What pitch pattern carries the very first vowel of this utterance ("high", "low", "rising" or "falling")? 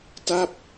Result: falling